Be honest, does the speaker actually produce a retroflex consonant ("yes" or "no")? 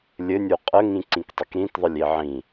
no